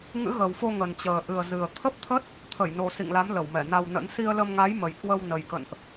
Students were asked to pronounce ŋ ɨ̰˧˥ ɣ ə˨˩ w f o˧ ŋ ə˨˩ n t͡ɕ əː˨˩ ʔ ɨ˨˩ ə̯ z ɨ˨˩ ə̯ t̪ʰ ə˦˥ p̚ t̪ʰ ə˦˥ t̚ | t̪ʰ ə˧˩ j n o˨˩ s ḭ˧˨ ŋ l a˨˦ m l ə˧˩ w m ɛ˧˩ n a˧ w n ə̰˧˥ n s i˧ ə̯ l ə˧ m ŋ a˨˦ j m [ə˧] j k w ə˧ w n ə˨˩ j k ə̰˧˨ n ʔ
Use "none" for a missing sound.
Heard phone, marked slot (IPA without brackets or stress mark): ə˨˩